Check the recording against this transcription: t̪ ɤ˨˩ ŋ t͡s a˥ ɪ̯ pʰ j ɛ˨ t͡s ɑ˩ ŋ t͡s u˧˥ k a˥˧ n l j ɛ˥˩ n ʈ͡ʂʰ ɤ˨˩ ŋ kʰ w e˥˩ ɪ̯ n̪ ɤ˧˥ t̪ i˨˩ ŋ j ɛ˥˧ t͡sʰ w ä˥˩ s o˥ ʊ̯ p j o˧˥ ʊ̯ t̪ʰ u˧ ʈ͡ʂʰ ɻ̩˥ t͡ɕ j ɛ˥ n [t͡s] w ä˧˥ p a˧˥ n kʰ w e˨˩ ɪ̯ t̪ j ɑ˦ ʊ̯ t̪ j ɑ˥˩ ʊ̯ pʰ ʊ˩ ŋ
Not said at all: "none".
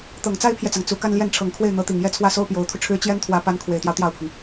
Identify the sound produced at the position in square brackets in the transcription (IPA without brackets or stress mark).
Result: t̪ʰ